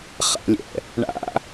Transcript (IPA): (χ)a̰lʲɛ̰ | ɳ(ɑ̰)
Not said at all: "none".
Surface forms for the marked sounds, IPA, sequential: χ, a̰

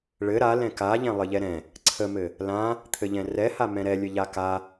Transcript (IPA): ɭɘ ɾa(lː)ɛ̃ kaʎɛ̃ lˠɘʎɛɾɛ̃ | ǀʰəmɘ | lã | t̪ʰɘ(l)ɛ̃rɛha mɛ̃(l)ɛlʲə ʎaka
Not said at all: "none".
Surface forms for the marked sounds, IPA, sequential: l, ʎ, ɾ

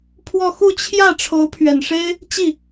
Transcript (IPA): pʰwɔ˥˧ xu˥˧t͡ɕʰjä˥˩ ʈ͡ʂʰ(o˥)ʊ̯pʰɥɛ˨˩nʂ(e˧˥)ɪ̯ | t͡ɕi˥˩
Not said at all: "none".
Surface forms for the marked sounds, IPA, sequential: o˧˥, e˥

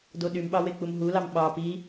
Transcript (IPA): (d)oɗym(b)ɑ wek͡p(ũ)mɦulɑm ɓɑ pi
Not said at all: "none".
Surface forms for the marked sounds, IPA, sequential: d, ɓ, u

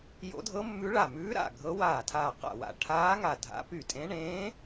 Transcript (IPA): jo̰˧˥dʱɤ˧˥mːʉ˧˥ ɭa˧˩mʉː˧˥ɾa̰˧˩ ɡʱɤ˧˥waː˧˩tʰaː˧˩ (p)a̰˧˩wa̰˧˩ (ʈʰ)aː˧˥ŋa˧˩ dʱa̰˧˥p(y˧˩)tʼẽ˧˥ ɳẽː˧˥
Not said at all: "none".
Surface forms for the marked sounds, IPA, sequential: q, ʈʰ, y˧˩

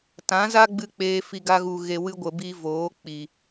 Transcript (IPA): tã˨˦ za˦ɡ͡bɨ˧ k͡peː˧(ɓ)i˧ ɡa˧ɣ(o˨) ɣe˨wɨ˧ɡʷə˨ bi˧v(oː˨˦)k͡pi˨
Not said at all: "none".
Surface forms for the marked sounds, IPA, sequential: f, u˨, oː˨˦

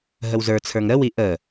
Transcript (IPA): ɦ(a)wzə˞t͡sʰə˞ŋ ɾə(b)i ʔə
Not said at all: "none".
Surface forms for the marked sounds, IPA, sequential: ə, w

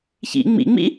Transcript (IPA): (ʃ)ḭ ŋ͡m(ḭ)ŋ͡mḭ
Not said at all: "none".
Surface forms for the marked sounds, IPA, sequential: ç, ḭ

